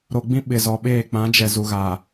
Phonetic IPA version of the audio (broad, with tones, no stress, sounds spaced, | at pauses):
ɾ o˨ ɡ͡b ĩ˦ ɓ ɪ˨ z ɔ˨ ɓ eː˦˨ k͡p ã˨˦ d͡ʒ ɛ˨ z u˨ ɣ aː˨